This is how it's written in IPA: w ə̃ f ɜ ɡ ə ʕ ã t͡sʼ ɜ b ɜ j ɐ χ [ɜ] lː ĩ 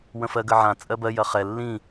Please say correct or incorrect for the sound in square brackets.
incorrect